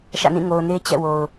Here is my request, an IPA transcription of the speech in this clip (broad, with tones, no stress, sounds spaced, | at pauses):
ʃ ä̰˦˨ n ĩ˦˨ ŋ o˨ ʊ̯ n e˦ t͡ɕ ɛ̰˦˨ w o˨ ʊ̯